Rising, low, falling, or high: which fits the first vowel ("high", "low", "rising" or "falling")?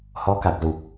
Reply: rising